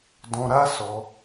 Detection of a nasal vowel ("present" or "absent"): present